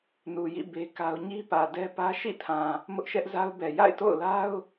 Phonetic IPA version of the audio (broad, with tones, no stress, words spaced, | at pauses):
nu˨jḭ˦˨ be˦ka˦ʊ̯ ɲi˦pä˨dɛ˦ pä˦ ʃḭ˦˨tʰã˨ | mʊ˦ʔʃɛ˦ʔza˦ʊ̯bɛ˨ ja̰˦˨ɪ̯to̰˦˨ʊ̯la˦ʊ̯